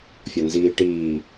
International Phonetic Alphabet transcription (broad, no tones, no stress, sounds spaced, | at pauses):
fʲ ɒ n z iː ʈ iː